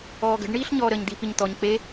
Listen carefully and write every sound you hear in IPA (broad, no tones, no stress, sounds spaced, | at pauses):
ɔː ɡ ə̤ ɖ ɳ iː ɬ ɲ ɔː ɾ əː ɲ d̪ i p i ɲ t̪ ɔ ɲ k͡p e